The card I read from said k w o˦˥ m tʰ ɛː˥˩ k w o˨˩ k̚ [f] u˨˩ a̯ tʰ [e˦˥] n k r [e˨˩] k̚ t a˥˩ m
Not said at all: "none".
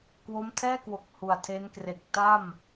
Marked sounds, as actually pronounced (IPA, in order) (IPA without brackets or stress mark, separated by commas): h, e˦˥, e˨˩